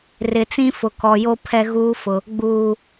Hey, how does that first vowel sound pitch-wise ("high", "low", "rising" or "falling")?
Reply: low